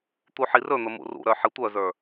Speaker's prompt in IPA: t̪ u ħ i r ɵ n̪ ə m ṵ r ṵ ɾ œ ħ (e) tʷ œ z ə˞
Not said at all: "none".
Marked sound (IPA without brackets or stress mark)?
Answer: i